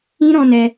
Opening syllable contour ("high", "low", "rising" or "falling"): high